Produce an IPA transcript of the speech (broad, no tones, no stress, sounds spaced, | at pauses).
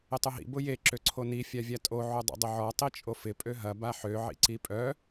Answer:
ɪ tˤ ʊ ɦ ḭ b ʊ j e ǁ ø ǀʰ o n i fʲ a vʲ a tʼ o ʕ o dˤ o̰ dˤ ʊ ʕ ɔ tˤ i t͡ʃʼ o f ɪ pʼ ø ɦ ɐ b a ħ ø ʕ ḭ ǀ i pʼ œ